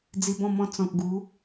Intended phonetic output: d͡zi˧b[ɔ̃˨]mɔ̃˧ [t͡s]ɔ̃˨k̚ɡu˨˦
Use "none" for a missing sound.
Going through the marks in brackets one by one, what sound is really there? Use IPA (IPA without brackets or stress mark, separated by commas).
ɔ̃˥˧, t͡s